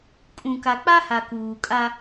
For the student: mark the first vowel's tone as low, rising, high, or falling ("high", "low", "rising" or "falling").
low